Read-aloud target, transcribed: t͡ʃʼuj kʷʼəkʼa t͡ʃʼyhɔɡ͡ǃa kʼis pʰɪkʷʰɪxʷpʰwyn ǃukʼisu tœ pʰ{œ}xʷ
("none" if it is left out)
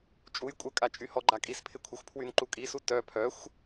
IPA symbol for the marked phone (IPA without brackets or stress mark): œ